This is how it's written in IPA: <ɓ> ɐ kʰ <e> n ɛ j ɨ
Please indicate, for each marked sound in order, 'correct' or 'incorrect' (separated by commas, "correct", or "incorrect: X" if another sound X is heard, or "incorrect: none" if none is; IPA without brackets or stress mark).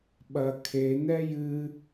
correct, correct